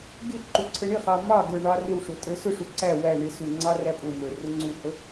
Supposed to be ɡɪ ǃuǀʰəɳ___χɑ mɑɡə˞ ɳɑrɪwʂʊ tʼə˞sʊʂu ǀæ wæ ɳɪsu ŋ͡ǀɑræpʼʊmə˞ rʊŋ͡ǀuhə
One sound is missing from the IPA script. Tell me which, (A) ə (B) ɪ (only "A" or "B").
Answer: B